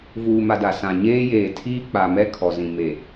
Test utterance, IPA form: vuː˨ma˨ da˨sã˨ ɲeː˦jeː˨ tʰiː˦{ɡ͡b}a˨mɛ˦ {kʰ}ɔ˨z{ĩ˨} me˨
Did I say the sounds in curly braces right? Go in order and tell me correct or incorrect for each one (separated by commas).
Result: incorrect, correct, correct